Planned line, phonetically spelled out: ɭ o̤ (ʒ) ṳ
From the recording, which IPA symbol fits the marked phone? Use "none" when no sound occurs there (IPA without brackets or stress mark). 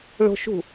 ʃ